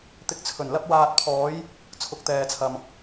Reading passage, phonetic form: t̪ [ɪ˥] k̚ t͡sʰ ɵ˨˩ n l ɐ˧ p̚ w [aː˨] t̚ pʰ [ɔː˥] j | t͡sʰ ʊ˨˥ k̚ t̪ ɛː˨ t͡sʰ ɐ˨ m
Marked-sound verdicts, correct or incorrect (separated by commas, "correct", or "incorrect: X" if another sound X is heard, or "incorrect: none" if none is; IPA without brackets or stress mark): incorrect: ɪ˨, correct, incorrect: ɔː˨˧